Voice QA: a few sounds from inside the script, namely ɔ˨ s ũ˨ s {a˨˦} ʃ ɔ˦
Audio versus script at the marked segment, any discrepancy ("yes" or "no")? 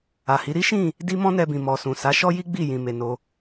no